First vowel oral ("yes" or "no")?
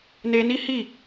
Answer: yes